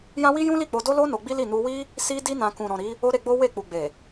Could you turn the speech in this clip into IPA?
j ã˦ w i˦ j ũ˦ l i˦˨ k͡p o˧ d o˦ l o˦ n o˧ ɡ͡b i˦ l i˦˨ n u˧ w i˦ | s i˦ d i˦ n ã˧ k ũ˨ ɾ ɔ̃˨ ɾ i˨˦ | o˦ ɾ e˧ ɡ͡b o˦ w e˦˨ k͡p u˨ ɡ͡b e˨

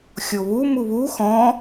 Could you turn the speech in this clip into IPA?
xʲ o β u m u β u x ɔ̃

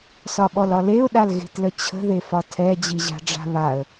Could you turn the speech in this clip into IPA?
s ɒ ɓ ɔ l ɒ l e ʊ̯ ɗ a l ɣ e̤ t l ə t͡ɕʰ ə̤ ð e f ɒ tʰ ɛ d͡ʑ i ʑ a̤ ɖ͡ʐ a̤ β a ə̯

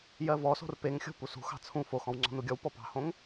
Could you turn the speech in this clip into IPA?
j ɜ v ɔ s o̤ r p e ŋ xʲ o̤ p u s ṳ x ɑ̤ t͡sʰ ũ f o x ɔ̃ w ŋ͡ǀ ɔ̤ n u ɡʲ ɔ w p ɔ p ɑ̤ h õ ŋ

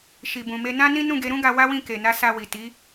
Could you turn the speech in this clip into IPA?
ʃ i˨ b ũ˨ m e˧ n ã˦ n ĩ˦ n ũ˦˨ ɡ e˨˦ ɾ ũ˦ ɡ a˧ w a˦ w ĩ˦˨ k e˨ n a˨˦ s a˧ w i˨ t i˨˦

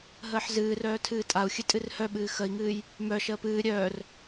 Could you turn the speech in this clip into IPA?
ɦ əː ħ z ɨː r œː tʰ ɨː tʼ a u̯ xʲ ɨ tʼ ɨ r h œ ɓ ɨː x ə i̯ ŋ ɨː j | m œ ʃ əː p ɨː ɾʲ œː r

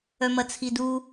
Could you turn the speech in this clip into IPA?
œ m ɐ t͡sʰ i d u

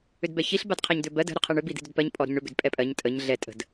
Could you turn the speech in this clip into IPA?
ʏ d b ɛ ç i ɬ b a d qʰ a ɲ d̪ ʏ b ɜ d ə̤ ɾ ʏ qʰ ɤ ɳ ʏ b i d̪ i̤ d ʏ d p ɜ ɲ pʼ ɔ ɾ ə̤ ɲ ɳ ʏ b ʏ d pʼ ɛ pʼ ɜ ɲ tʼ ə ɲ ɮ ɛ tʼ ə̤ d

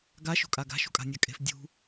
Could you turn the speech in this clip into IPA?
ɡ a ʃ ṳ kʼ a ɡ a̤ ʃ ṳ kʼ a̤ nʲ a kʼ e̤ f dʲ ṳ

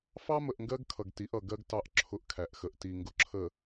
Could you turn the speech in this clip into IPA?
f ɑ˦ m ə˨ ʔ ŋ ɡ ɜ˦ ɡ kʰ ʌ˨ ɡ t i˨˦ ʔ ʌ˨ ɡ ɜ˦ ɡ t ɑ˦ ʔ ǁʰ ʊ˦ ʔ kʰ æ˨ ʔ x ə˨ ʔ t i˨ ŋ ɡ ʊ˨ ǁʰ ə˨

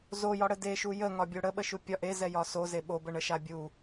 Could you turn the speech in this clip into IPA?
z o j ɒ ɽ ə d e ʃ u j ə ŋ ɒ bʲ o ɽ ə ɓ ə ʃ u pʲ ɒ ʔ e z ɛ j ɒ s o z e ɓ o b ə ɳ ə ʃ a bʲ u

